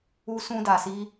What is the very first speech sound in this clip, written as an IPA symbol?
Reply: u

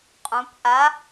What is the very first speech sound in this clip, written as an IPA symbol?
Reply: qʼ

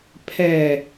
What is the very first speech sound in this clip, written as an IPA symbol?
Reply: pʰ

